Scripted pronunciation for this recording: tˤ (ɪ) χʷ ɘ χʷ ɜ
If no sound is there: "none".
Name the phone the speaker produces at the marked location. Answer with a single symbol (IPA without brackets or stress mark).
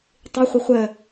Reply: ɪ